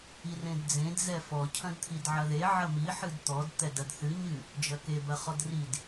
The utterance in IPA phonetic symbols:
i r ẽ d d͡z ẽ d z ɛ f ɔ cʰ ɐ̃ d t̪ʰ i d ʕ ɐ ð e ʕ ɐ m i ħ ɨ d t̪ ɔ d t̪ ɛ d ɐ d θ ɨ ɲ ɨ | d͡ʒ ɐ k e b ɐ χ ɔ d r i d

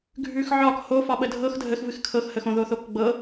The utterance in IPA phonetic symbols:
ɡʱ ʉ x ʕ ɒ k h o f ɒ ɓ ə dʱ ɤ x dʱ ə x v ɨ x kʰ ɤ x h ə x õ ð o θ o k ɡ͡b ɤ

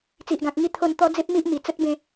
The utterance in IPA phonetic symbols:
t͡s i˨ ʔ ɡ ã˨ k̚ ŋ i˥˧ t̪ʰ o˥˧ n t̪ ɔ˦ d͡z e˦ p̚ m i˦ ʔ m i˨˩ t͡s ə˦ t̚ b ẽ˥˧

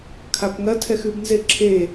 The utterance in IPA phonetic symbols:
kʰ a p ŋ ɐ tʰ ɛ x ʉ b n z e ǁʰ e

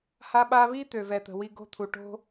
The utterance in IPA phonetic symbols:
h a˦ ɓ a˦ β i˦ t̪ ø˨ v ɛ˨ t̪ ə̤˨ w i˧ ɡ o̤˦ t̪ʰ u˨ ʈ o̤˦

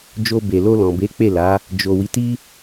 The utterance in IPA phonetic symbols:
d͡ʒ o˧ b e˨ l o˧ l ɔ̃˨ b e˨˦ k͡p e˦˨ l a˨˦ | d͡ʒ o˨ w i˨˦ t i˦

